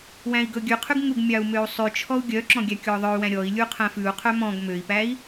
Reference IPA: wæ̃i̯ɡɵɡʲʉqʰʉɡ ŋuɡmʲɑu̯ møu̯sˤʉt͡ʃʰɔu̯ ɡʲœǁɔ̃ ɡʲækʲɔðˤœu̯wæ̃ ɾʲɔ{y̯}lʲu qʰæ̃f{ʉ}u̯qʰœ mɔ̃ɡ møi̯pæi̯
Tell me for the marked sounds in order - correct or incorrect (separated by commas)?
incorrect, correct